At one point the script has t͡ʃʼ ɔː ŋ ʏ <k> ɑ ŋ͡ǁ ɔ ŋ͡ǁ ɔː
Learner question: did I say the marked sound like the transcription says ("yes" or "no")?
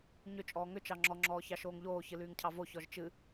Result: no